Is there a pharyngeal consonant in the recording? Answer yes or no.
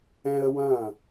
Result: no